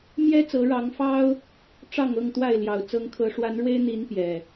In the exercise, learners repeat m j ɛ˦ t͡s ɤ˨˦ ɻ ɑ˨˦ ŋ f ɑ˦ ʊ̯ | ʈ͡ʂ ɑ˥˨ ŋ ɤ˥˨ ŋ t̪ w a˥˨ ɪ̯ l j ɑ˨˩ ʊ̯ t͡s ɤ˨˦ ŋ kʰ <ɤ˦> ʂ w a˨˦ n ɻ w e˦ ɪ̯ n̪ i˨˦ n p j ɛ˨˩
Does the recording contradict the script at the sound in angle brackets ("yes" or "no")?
yes